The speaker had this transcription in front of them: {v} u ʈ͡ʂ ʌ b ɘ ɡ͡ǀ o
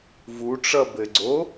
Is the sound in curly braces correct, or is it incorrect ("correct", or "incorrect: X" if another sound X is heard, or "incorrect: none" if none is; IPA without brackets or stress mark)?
correct